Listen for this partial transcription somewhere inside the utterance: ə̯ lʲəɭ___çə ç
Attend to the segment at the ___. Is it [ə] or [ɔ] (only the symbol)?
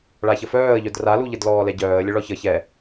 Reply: ɔ